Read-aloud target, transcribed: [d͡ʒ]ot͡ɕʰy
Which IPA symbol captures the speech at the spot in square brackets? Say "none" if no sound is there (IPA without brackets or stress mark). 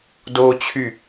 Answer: d